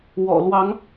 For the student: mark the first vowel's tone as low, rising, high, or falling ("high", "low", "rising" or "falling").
low